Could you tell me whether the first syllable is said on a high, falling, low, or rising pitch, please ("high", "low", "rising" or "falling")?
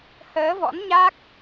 rising